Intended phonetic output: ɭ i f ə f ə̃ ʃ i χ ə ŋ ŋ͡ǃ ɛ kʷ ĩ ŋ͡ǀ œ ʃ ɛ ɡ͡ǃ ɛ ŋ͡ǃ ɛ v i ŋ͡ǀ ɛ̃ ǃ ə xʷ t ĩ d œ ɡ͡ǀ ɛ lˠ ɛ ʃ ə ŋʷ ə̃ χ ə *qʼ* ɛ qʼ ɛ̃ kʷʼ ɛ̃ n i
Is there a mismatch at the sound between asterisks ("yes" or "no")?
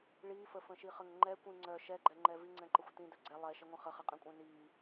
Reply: yes